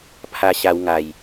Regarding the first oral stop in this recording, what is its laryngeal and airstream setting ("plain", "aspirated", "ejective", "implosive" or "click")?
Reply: aspirated